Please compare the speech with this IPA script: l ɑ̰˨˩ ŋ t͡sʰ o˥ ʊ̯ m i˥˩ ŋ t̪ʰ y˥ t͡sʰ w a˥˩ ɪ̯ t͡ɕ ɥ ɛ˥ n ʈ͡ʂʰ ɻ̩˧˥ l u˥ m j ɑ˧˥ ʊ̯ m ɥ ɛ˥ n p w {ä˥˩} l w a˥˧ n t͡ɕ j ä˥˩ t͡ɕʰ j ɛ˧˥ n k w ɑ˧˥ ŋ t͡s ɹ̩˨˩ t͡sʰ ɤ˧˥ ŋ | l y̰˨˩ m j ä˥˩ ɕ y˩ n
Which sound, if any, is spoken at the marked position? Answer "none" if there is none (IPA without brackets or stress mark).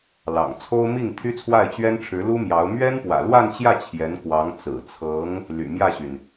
ä̰˨˩